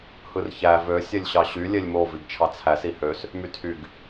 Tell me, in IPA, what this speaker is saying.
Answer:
h ɯ r ç æ v ø sʲ e lʲ ɕ ɑ ɕ y lʲ e lʲ m o v i ɡ t͡ʃʰ ɑ t͡sʰ æ s i h ø s | m y tʰ y ɡ

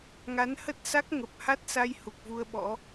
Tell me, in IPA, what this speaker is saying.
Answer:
ŋ a˨˦ n h ə˦˥ t̚ s a˦˥ k̚ ŋ ə˨˩ p̚ h a˦˥ t̚ s a˧ j h u˨˩ k̚ v u˧ ə̯ ɓ ɔ̰˧˥

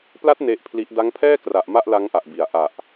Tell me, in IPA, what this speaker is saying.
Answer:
p l a˦˥ t̚ n e˦˥ ʔ pʰ l i˦˥ ʔ d a˦˥ ŋ pʰ ɛː˥˩ k r a˨˩ ʔ m a˥˩ ʔ l a˦˥ ŋ ʔ a˨˩ ʔ b i˨˩ a̯ ʔ a˨˩ ʔ

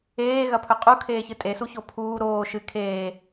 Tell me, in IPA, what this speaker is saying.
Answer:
eː ɣ ɐ pʰ ɵ qʼ u kʰ eː ç ɨ tʼ e s u ç o pʰ uː ɾ oː ʃ ɨ kʰ eː

